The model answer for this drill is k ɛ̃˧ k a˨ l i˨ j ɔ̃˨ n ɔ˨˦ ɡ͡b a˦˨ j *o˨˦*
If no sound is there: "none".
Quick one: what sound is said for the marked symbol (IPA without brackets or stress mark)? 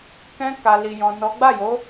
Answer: o˨˦